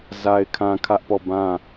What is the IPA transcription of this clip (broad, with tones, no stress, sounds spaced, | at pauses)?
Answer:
z a˦ ɪ̯ kʰ ã˦ kʰ ä˦ ʔ p ɔ˦˨ b ã˦˨